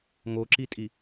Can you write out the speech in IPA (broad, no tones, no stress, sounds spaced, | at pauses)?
ŋ o ǁ i tʼ i